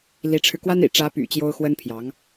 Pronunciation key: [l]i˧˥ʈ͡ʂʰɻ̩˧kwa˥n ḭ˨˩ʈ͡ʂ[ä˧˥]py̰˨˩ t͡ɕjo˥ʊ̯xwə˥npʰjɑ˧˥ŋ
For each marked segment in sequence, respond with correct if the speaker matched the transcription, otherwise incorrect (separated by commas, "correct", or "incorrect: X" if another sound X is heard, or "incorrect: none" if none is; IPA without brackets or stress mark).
correct, correct